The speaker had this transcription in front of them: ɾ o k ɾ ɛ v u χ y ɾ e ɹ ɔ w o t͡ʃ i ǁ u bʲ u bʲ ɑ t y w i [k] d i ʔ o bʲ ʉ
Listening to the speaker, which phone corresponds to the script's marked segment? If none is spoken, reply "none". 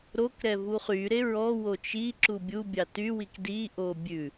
k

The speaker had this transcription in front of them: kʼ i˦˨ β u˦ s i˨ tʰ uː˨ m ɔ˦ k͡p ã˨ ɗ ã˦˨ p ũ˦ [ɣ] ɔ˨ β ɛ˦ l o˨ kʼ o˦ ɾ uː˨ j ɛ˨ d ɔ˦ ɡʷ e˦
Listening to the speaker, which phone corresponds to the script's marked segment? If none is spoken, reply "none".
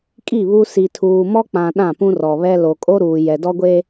r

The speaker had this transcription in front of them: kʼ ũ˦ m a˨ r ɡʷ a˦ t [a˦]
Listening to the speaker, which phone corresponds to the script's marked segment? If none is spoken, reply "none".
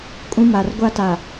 a˨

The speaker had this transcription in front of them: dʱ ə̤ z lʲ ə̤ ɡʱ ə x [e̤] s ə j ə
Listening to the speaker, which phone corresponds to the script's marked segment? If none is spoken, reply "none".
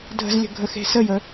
e̤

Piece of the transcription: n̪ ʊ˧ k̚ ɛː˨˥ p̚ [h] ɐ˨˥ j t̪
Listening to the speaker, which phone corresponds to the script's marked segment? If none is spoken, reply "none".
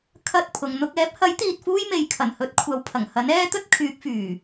h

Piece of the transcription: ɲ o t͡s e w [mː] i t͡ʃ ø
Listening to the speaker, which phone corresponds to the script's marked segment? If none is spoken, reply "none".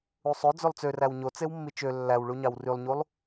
mː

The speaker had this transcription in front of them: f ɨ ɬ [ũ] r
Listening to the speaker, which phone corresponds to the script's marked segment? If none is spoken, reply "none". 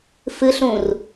ũ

